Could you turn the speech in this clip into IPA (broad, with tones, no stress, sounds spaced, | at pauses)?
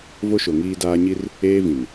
v o˦ ʃ o˨ ŋ iː˦ d aː˦ ɲ i˦ r | eː˦ v ĩ˨ n